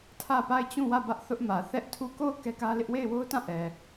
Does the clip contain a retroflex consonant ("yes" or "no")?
no